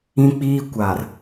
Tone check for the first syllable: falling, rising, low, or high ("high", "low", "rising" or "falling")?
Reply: high